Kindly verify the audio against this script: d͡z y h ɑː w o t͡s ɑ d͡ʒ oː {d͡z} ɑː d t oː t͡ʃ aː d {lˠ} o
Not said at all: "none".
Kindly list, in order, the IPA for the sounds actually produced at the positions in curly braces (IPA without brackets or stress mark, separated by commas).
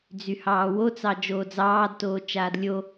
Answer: d͡z, lʲ